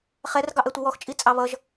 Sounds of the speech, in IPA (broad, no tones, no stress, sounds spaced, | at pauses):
χ ɛ r ɡ ɑ ʔ ɛ tʷ ɪ w ɔ x t͡ʃʼ i t͡sʼ ɑ β ʌ ʒ